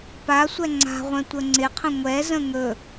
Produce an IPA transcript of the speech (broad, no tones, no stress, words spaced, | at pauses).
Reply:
pa sʷɛŋ͡ǀa̤ʁʷɛ̃ tʷəŋ͡ǀɪqʰə̃ ŋʷɛ zə̃ŋɵ